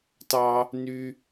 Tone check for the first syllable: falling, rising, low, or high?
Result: high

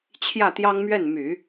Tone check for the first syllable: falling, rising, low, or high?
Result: falling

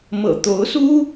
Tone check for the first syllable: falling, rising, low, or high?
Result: low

